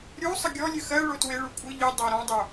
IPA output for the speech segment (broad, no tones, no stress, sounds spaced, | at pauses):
ɾʲ u sˤ ə ɡʲ ɔ lʲ ɨ x ɜ ɭ o t w e ɭ u kʷʼ ɨ ʎ ɨ dˤ ɜ ɾ ɔ̃ dˤ o